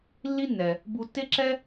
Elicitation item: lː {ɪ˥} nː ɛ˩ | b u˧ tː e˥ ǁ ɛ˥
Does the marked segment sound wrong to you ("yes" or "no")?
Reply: yes